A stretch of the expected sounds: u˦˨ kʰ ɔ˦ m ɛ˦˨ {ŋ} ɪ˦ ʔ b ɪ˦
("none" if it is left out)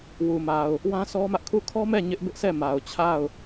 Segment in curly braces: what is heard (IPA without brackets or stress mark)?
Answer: ɲ